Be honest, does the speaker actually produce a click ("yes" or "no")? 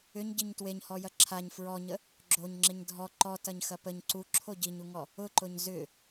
yes